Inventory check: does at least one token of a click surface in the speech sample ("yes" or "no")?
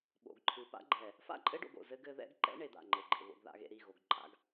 yes